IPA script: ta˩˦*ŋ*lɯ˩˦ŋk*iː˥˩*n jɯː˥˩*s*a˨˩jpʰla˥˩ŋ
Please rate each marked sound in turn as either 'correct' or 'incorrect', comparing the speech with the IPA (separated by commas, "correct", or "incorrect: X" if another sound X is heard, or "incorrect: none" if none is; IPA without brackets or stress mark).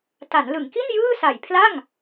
incorrect: n, incorrect: i˥˩, correct